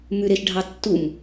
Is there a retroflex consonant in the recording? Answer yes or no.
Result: yes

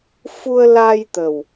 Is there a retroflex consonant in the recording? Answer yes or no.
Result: no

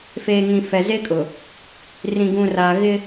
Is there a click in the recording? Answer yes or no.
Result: no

